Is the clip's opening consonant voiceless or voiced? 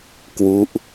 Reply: voiceless